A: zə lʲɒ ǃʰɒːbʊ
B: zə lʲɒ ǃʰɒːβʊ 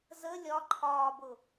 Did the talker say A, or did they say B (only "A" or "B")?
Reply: A